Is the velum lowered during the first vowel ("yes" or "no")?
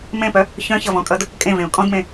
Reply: yes